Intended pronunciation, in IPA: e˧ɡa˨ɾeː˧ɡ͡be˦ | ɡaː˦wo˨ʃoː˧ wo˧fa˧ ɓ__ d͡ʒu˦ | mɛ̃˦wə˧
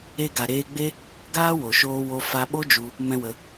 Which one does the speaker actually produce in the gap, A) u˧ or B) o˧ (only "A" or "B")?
B